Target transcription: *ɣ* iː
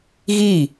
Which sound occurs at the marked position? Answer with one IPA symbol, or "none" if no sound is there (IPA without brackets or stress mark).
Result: ɣ